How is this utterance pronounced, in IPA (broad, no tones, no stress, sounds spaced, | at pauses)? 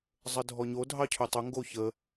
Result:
zˤ ə dʱ ɔ ɲ o dʱ ɑ cʰ ʊ tˤ ʊ ŋ ɡ o ç ə